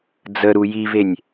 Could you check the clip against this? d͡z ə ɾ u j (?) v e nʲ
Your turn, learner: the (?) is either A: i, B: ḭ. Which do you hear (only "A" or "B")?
A